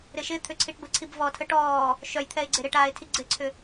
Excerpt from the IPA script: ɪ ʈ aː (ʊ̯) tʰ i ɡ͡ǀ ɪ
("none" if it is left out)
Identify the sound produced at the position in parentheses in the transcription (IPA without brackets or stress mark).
ɪ̯